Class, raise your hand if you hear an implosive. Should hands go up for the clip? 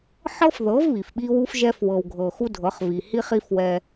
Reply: yes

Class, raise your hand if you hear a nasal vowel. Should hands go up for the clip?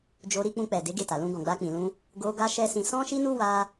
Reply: yes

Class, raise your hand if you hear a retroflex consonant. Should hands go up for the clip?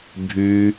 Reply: no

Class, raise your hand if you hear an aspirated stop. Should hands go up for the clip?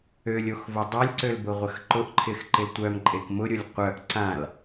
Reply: yes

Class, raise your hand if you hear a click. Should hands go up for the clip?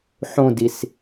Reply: no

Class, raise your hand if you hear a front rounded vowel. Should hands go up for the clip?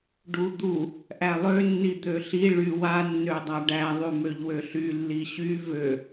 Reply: yes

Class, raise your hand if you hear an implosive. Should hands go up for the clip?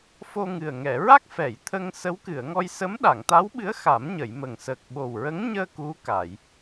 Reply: yes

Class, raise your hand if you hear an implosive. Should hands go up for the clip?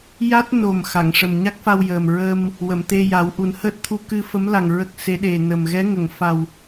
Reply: yes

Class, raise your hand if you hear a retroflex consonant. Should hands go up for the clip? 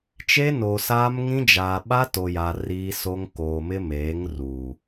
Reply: no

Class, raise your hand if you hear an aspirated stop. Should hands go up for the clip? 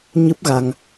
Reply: no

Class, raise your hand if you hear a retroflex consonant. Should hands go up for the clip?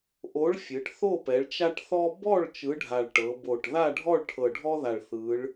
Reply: yes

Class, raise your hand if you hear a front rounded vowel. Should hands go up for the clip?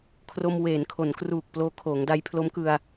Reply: no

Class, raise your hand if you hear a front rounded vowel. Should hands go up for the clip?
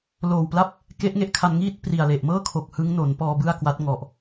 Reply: no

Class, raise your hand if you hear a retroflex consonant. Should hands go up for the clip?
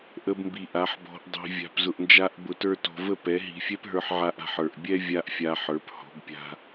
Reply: no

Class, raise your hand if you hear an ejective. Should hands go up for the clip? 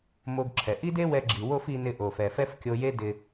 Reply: no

